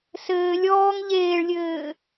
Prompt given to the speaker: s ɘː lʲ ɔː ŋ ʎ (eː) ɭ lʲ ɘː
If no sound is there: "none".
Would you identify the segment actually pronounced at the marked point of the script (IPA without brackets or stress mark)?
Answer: eː